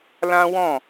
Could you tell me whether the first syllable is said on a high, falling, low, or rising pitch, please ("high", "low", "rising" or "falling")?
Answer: high